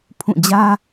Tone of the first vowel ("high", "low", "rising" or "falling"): falling